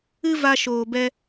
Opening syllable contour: high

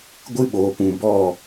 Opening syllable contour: high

